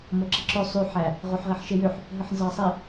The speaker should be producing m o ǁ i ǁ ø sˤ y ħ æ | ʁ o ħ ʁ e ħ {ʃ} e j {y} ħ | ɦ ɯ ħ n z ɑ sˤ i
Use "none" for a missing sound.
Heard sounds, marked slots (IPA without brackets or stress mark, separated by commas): ʃ, ø